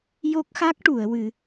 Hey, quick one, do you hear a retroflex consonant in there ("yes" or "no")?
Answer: yes